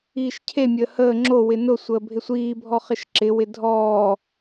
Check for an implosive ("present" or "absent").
absent